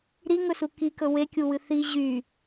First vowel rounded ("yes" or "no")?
no